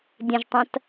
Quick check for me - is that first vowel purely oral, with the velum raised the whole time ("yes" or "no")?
no